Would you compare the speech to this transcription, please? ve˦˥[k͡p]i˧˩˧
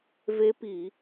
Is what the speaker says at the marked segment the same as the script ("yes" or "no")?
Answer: no